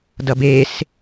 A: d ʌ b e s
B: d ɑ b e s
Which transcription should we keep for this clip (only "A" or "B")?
A